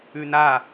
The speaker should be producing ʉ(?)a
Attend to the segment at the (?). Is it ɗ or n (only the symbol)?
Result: n